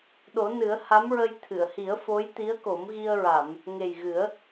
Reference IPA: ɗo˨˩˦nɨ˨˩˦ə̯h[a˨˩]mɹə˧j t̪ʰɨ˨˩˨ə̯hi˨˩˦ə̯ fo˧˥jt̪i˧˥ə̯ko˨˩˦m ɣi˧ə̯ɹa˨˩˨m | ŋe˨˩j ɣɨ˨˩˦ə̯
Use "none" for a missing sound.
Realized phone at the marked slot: a˧˥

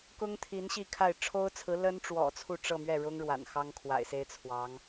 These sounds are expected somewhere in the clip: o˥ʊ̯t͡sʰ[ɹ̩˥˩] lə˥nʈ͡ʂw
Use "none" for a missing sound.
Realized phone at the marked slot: ɹ̩˧˥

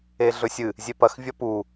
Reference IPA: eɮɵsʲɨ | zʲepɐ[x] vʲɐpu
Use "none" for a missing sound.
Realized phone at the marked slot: x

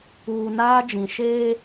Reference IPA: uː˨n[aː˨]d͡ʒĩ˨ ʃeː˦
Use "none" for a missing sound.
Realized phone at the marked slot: aː˦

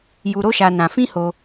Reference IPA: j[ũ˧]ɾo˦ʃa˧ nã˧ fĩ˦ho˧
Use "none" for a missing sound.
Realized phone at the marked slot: u˧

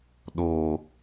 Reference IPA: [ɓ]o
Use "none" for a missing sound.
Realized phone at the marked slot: ɗ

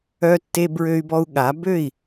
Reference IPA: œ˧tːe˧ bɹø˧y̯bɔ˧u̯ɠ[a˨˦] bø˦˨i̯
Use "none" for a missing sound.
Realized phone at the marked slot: a˨˦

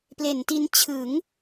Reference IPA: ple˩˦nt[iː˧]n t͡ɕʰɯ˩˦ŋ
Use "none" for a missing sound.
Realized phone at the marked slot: i˧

